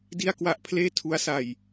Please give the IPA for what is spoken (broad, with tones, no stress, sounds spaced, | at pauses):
d i˥˩ a̯ k w a˥˩ ʔ pʰ l eː˥˩ tʰ u˦˥ a̯ s a˧ j